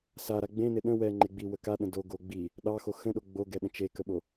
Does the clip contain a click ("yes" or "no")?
yes